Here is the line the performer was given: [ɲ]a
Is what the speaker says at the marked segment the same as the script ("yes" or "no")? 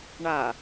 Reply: no